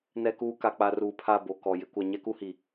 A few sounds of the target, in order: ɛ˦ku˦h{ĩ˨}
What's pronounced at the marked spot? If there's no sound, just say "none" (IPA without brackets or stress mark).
i˨